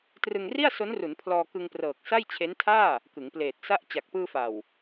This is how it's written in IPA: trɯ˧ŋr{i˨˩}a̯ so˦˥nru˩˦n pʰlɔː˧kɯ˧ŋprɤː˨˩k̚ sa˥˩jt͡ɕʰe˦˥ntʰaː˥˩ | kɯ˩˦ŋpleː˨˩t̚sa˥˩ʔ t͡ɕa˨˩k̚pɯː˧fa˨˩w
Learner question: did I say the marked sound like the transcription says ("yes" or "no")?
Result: no